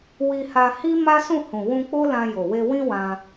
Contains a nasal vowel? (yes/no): yes